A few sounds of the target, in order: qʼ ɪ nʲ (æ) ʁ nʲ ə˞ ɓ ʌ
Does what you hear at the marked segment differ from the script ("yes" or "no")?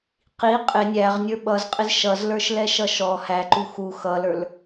no